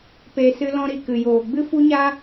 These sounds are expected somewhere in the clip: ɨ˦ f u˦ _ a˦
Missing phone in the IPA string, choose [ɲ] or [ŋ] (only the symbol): ɲ